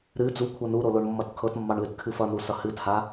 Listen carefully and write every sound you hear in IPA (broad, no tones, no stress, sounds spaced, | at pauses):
ɾ ɨ d͡z u kʷʰ ʌ n u ɾ o l o ɳ mː ʌ t kʰ ɤ t mː ɑ ɳ l ɨ t kʰ ɨ f ʌ n u s ʌ h ɨ t h a